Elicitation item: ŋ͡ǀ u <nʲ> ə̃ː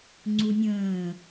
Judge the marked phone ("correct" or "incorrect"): correct